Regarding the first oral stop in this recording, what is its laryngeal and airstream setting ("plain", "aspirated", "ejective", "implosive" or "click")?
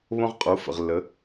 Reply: ejective